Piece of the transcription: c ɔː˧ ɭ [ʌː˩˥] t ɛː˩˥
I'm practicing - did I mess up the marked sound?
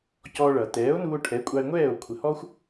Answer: yes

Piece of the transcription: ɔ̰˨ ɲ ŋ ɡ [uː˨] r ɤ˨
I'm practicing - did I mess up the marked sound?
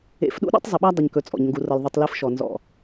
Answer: yes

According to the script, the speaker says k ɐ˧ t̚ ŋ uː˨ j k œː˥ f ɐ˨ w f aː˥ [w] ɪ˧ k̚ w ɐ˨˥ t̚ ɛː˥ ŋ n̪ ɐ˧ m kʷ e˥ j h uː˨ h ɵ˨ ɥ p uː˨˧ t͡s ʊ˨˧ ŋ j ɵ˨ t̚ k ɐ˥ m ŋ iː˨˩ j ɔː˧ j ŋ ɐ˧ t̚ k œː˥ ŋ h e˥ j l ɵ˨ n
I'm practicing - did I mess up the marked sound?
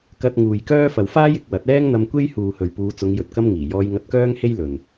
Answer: yes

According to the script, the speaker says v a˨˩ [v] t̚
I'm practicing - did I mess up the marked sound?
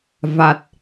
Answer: yes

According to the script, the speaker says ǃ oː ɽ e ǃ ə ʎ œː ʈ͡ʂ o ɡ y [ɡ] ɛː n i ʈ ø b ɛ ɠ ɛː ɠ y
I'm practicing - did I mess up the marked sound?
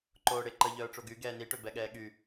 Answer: no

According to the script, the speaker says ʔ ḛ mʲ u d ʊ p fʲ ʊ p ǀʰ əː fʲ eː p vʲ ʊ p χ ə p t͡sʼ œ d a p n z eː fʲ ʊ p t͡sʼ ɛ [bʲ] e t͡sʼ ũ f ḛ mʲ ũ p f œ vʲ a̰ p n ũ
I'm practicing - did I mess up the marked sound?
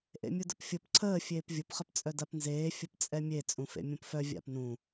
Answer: yes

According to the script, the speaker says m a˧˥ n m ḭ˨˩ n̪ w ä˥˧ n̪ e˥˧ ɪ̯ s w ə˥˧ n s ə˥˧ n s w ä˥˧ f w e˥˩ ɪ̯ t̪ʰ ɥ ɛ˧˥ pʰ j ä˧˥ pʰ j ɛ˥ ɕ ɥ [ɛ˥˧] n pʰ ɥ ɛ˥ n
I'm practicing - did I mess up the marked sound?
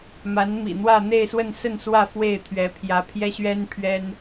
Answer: yes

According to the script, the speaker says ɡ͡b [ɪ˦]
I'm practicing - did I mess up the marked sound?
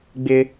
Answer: no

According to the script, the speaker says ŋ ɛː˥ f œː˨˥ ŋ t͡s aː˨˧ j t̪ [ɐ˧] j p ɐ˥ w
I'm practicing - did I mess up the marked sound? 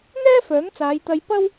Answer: no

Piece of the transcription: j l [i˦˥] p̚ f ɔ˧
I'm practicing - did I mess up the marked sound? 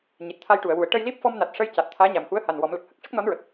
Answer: no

